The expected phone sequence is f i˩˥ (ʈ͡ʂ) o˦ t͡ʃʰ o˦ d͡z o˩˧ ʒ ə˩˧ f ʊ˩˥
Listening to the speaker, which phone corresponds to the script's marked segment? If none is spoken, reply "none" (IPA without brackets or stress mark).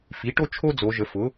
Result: ʈ